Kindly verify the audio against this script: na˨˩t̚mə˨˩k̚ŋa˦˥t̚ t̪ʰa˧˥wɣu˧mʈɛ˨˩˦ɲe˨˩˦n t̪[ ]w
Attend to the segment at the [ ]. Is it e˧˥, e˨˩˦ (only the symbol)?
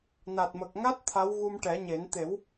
e˨˩˦